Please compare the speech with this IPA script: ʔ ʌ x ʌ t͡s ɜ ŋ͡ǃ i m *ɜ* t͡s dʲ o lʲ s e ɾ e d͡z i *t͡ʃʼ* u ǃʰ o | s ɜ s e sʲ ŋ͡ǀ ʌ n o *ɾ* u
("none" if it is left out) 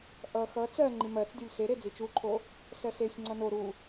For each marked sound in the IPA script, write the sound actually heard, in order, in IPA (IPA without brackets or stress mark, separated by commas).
ɜ, t͡ʃ, ɾ